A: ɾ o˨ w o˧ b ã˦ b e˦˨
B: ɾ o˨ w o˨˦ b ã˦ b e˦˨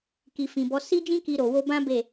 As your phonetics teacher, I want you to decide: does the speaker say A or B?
A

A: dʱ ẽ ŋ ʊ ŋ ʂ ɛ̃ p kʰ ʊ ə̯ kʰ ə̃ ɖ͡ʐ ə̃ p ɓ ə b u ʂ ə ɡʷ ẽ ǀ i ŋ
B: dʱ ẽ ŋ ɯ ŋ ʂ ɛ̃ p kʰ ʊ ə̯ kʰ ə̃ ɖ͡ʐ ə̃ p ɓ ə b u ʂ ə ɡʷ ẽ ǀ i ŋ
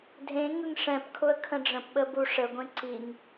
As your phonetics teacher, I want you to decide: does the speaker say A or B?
B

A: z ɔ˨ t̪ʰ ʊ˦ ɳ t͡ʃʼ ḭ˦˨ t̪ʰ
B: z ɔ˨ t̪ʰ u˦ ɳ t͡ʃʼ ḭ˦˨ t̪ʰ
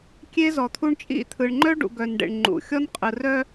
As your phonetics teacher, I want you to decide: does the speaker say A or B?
B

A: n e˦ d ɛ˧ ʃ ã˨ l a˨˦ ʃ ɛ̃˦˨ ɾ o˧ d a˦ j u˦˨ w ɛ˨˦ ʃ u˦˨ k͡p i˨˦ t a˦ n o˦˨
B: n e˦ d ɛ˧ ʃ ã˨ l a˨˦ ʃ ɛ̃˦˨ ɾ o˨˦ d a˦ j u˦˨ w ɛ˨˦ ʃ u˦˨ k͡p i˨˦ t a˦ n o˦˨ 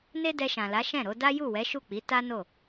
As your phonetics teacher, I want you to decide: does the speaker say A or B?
B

